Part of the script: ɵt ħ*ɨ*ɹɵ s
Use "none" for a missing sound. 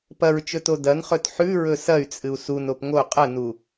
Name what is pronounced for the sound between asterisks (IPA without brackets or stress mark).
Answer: ʉ